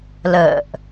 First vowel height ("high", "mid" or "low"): mid